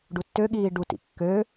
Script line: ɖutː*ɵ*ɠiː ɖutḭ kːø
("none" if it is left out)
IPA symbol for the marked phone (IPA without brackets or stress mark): ø